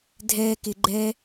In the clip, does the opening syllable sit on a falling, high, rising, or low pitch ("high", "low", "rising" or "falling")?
low